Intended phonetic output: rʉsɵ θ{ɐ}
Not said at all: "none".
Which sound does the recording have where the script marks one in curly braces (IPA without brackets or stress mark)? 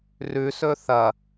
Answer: ɐ